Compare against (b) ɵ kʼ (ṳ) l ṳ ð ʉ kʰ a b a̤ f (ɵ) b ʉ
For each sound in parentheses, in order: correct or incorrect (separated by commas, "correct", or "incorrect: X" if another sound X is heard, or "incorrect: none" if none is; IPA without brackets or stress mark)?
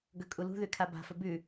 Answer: incorrect: ɡ, incorrect: u, correct